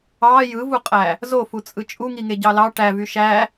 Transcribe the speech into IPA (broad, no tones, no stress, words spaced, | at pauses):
ɑ jɯvuqʼæ | zofut͡sʼɯ t͡ʃʼuŋiŋeɟɑ lɑ ʈævy ʃæ